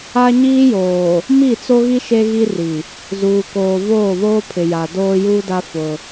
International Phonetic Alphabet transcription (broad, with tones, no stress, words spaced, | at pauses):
a˦ ɲiː˦joː˨ | mi˦˨t͡so˦ɣi˦ ʃe˦ɣi˦ri˨ | zuː˨koː˨ voː˦˨βoː˦ pʰɪ˨ja˨ doː˦juː˦da˦ fʊ˦